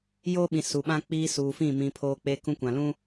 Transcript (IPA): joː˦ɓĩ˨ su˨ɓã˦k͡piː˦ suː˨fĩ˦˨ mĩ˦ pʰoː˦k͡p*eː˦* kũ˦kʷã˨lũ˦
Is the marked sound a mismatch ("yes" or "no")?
yes